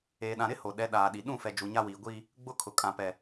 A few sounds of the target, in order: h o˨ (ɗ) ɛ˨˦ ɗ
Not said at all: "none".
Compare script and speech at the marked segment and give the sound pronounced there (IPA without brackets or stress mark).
ɗ